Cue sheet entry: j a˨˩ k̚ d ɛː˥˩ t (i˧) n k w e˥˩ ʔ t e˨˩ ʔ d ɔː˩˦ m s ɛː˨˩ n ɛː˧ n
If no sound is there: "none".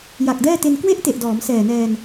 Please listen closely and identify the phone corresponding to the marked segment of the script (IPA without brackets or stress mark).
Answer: e˧